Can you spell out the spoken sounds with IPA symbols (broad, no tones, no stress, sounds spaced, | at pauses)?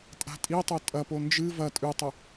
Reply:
tʼ a̤ tʼ i tˤ o tʼ ɐ p o n d͡ʒ ɨ v ɐ tʼ ʉ tˤ ɵ